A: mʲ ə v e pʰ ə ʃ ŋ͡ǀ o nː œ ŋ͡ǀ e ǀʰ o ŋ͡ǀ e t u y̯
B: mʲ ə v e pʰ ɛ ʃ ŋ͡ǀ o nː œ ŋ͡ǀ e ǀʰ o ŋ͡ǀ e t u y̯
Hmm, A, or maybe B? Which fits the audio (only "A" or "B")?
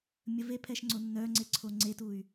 B